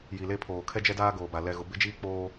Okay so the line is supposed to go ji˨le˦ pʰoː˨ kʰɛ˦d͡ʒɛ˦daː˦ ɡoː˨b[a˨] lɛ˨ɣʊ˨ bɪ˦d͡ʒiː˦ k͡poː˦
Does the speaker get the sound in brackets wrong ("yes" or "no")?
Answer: no